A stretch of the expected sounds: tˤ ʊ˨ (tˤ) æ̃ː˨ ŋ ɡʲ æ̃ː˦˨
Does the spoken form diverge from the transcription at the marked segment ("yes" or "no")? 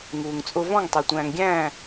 yes